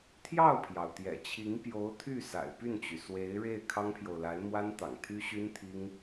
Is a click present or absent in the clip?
absent